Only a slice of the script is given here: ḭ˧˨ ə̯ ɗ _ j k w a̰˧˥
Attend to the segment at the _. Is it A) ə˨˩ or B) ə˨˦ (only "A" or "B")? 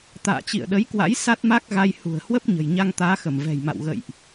B